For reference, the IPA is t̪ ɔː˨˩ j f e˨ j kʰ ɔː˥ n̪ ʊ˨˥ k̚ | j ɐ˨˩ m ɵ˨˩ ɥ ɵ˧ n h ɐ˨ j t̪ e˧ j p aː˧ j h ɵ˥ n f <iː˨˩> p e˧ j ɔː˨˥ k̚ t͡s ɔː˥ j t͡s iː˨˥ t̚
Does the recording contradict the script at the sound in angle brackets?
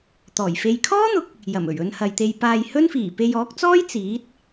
no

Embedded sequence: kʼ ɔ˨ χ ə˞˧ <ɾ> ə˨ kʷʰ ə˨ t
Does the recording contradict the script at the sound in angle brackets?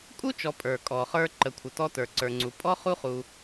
yes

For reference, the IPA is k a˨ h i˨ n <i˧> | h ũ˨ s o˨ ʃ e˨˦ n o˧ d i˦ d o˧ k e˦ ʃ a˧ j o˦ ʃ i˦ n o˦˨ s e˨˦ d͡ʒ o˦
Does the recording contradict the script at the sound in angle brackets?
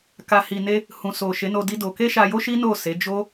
yes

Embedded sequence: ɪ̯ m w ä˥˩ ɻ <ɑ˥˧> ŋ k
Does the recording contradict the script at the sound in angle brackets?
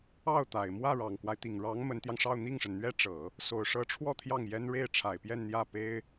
yes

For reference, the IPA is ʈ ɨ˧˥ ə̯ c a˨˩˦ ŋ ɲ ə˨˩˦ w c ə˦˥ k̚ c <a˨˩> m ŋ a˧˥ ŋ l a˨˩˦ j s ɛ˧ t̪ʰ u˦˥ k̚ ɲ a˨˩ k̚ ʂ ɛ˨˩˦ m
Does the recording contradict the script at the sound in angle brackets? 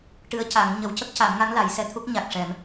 yes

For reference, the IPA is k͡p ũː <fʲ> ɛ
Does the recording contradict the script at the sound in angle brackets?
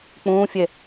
no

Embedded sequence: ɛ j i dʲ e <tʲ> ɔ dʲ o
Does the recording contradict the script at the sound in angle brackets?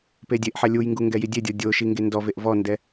yes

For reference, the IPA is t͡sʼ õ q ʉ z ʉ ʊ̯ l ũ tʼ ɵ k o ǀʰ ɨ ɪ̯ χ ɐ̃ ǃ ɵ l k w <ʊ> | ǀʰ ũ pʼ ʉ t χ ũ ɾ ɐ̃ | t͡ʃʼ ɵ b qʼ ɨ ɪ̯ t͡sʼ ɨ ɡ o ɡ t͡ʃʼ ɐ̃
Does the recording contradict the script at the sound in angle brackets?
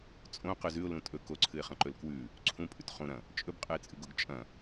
yes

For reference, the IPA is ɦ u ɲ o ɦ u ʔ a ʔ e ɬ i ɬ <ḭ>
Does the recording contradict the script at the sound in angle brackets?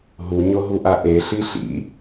no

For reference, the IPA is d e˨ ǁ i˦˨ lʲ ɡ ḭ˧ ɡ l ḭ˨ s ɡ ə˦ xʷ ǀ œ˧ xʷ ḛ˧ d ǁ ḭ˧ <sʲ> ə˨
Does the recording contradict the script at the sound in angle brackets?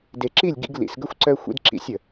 no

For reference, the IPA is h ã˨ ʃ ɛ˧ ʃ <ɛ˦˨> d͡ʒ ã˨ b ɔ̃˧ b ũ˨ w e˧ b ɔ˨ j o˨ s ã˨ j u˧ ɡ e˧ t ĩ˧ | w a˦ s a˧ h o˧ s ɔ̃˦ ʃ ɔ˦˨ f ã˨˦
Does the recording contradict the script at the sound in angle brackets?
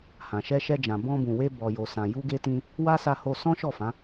yes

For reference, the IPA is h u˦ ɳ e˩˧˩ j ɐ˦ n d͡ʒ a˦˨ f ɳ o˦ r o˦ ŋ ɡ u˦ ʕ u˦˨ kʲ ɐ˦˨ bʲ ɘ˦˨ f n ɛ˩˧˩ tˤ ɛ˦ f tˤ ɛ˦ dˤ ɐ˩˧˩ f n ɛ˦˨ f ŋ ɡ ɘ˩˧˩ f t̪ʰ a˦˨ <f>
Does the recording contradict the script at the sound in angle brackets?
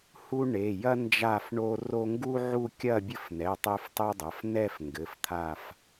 no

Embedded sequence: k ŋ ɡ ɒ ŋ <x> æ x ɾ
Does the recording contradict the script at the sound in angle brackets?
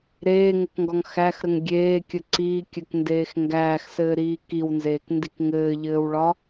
no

